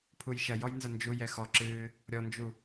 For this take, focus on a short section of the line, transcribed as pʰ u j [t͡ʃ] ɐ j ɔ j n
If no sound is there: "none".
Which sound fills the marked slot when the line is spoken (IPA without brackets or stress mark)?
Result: ʃ